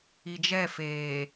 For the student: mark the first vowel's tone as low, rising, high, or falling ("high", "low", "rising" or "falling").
low